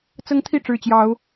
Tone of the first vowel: high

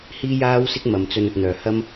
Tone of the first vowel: high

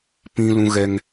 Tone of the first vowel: high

